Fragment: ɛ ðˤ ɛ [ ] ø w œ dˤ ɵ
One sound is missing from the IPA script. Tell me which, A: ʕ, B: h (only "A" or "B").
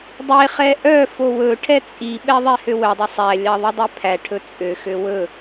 B